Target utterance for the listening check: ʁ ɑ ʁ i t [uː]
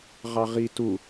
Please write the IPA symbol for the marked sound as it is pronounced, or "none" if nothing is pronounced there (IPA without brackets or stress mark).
u